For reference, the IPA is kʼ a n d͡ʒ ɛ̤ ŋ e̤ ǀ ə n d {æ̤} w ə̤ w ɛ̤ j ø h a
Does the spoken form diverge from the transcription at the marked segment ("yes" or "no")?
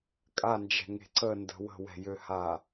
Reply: yes